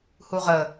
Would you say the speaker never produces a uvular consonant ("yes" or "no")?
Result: no